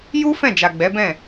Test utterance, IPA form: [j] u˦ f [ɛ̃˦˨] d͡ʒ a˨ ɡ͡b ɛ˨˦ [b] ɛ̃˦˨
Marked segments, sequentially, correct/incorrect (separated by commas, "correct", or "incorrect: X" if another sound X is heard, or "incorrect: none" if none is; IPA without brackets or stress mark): correct, correct, correct